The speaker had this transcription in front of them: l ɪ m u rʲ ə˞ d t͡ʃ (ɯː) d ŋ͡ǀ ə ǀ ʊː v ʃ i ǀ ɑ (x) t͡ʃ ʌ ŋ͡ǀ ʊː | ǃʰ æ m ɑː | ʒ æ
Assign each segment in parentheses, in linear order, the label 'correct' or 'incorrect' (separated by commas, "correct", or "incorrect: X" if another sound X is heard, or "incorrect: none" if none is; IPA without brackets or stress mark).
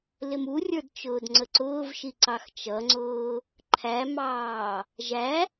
incorrect: ʊː, correct